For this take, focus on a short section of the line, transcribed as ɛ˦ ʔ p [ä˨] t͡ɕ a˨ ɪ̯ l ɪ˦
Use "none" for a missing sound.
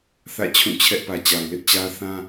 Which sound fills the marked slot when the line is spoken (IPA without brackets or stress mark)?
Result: ä˨